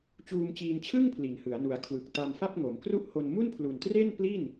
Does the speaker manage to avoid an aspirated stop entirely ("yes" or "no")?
no